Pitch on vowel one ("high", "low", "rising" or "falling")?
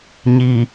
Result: low